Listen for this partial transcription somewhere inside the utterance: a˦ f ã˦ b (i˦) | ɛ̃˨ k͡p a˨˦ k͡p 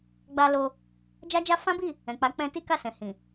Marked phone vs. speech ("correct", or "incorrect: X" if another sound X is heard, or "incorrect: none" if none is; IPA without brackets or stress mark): incorrect: i˦˨